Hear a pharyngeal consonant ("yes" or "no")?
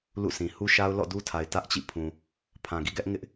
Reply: no